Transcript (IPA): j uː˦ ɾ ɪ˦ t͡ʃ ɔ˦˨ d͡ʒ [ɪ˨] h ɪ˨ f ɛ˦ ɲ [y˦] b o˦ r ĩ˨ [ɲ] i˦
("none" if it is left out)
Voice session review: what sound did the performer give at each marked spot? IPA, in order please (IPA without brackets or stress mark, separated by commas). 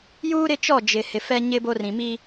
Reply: ɪ˨, ɪ˦, m